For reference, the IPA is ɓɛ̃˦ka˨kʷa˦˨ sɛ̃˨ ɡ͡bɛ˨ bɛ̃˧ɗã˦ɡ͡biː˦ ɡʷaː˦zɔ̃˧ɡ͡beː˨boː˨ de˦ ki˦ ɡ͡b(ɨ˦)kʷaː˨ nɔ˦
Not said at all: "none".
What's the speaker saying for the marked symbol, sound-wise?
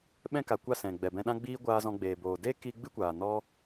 ɨ˦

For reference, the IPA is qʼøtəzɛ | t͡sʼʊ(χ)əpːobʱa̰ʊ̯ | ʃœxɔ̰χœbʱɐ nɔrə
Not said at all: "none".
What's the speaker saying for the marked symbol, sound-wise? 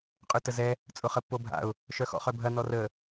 χ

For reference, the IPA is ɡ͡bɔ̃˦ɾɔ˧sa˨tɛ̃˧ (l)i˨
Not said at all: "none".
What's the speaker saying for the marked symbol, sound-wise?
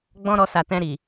ɾ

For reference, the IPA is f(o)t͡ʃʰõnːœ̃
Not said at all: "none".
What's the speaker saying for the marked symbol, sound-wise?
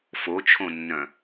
o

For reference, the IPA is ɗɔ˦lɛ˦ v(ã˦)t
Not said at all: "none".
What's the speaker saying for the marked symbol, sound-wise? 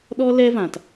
ã˦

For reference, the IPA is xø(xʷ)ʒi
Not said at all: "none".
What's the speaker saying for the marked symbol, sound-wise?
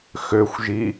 xʷ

